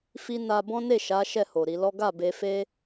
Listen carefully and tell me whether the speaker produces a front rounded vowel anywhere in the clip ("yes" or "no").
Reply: no